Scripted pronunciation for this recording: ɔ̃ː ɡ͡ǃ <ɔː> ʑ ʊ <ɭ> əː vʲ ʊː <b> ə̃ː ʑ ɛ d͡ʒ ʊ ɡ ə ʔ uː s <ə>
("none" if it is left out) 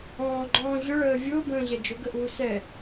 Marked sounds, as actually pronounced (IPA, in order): ɔ̃ː, ɭ, b, ɛ

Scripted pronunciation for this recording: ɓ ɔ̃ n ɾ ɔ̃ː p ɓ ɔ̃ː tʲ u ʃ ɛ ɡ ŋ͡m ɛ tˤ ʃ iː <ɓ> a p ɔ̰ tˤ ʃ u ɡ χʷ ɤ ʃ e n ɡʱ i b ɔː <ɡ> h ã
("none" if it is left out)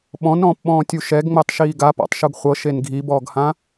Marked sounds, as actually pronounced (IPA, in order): ɡ, ɡ

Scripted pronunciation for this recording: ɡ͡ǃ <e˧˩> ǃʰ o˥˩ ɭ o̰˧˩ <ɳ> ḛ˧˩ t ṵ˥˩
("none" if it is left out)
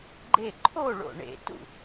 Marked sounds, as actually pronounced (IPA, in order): e˧˩, ɳ

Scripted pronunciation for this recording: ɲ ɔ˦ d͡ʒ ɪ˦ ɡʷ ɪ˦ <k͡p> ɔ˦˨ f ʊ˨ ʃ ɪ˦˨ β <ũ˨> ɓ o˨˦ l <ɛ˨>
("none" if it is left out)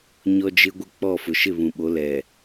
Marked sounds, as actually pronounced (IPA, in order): k͡p, ũ˨, ɛ˨

